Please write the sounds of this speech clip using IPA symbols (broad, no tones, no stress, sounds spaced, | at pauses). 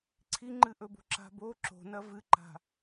ǀʰ i ŋ͡ǃ ɨ ʔ ɵ b o̤ ǁ a̤ b o ǁ o̤ n ɐ v ɨ ǃ a̤